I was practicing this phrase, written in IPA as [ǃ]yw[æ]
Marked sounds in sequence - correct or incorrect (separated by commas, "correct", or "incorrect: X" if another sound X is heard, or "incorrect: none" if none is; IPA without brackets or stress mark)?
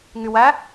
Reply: incorrect: ŋ, correct